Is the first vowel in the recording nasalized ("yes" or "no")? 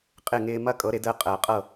no